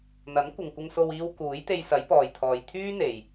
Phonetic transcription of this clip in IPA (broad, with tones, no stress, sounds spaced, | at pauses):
n̪ ɐ˨˥ n kʷ ɪ˨ ŋ kʷ ɪ˧ ŋ s o˧ w iː˧ w k uː˨˥ j t̪ e˧ j s ɐ˨˥ j p ɔː˨ j t̪ʰ ɔː˨ j t̪ʰ yː˥ n̪ e˨ j